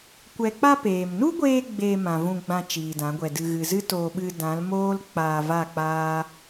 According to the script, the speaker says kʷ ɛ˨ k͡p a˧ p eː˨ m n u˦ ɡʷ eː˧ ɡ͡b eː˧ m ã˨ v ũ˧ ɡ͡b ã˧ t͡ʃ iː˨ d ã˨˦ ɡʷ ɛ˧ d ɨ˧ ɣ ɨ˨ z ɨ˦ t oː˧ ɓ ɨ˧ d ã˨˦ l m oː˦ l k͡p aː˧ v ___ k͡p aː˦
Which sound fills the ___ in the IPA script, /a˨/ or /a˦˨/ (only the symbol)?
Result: a˦˨